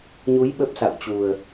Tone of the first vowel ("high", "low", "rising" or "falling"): rising